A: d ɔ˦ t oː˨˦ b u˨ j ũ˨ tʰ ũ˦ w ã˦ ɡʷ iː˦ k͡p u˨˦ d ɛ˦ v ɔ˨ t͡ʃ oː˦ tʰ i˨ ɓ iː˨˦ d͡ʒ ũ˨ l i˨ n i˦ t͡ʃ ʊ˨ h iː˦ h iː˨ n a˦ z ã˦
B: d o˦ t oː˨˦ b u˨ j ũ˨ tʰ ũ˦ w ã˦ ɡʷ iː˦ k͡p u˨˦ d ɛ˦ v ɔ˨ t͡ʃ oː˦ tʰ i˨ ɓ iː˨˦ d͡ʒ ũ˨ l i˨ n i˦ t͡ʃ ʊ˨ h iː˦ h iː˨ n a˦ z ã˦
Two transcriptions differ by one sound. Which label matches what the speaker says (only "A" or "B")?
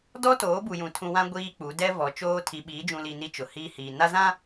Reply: A